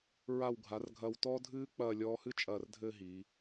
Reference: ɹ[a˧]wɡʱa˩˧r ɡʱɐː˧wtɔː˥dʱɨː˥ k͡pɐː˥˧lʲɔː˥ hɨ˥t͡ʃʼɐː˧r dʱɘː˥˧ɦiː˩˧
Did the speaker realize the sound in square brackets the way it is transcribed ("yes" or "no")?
no